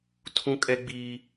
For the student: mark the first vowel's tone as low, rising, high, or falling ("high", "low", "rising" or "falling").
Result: high